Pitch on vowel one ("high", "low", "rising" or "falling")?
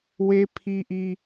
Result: high